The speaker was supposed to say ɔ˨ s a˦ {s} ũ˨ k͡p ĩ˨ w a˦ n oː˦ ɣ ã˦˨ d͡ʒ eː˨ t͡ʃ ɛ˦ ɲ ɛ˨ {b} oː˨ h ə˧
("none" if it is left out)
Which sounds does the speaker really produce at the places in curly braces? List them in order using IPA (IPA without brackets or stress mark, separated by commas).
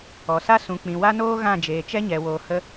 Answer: s, w